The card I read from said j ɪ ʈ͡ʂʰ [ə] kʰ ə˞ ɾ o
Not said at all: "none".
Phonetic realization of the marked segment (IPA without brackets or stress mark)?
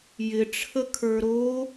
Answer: ə